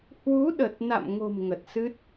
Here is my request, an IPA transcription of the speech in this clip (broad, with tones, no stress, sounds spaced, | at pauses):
h w u˨˦ ɗ ə˨˩ t̚ n a̰˧˨ m ŋ o̤˨˩ m ŋ ə˨˩ t̚ s ɨ˦˥ t̚